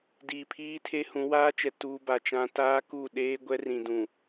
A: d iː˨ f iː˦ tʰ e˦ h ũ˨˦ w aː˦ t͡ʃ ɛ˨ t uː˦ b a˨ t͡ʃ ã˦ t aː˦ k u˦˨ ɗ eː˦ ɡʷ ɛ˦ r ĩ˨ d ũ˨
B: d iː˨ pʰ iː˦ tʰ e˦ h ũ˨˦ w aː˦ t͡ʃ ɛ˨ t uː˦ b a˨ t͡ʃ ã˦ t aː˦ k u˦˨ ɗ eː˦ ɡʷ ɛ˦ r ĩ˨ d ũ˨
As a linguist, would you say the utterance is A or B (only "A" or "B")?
B